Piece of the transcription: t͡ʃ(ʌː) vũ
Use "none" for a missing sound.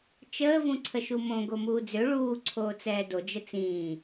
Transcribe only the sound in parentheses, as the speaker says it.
əː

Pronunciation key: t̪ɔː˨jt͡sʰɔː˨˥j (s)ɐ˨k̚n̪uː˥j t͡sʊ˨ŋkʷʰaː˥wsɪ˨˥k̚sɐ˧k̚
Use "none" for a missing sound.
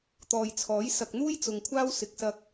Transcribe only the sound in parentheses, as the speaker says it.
s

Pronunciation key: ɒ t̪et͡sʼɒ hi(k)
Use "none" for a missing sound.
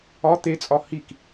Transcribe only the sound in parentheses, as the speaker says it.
k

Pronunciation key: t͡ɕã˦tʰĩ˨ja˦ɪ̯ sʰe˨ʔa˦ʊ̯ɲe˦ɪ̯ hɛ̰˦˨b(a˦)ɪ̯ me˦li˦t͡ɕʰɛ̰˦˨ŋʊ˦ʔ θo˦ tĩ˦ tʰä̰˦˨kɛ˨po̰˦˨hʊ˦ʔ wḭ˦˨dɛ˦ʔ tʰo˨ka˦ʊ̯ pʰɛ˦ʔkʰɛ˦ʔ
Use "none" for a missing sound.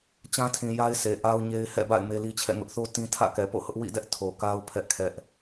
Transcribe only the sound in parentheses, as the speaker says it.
a̰˦˨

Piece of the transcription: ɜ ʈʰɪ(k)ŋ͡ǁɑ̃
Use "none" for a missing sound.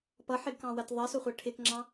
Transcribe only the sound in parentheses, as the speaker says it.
k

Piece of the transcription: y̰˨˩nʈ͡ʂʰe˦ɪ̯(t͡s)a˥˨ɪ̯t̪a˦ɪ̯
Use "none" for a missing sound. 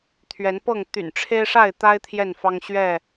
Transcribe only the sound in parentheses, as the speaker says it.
ʂ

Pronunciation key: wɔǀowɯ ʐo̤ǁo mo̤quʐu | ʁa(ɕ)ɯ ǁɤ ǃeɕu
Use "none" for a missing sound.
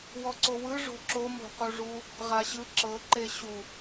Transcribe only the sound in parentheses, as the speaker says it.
ɕ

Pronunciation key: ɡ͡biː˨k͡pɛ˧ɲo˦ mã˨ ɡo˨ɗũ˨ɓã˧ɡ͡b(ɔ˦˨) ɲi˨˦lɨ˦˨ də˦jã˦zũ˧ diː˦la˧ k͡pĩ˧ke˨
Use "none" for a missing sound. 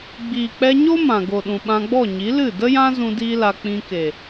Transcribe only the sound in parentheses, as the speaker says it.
ɔ˦˨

